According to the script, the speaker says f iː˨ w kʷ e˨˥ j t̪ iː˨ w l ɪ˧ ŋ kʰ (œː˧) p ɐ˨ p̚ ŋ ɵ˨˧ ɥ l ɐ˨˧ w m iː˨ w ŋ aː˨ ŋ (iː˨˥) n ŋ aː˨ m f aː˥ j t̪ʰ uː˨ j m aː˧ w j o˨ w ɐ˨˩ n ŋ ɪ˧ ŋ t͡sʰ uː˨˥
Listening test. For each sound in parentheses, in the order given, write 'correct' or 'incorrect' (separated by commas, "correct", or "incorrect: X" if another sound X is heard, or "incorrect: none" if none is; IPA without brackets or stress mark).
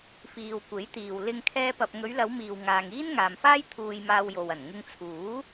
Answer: incorrect: ɛː˧, incorrect: iː˥